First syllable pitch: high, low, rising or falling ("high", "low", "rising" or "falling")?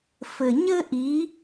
low